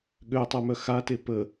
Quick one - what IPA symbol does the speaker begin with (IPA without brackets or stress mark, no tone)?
ɠ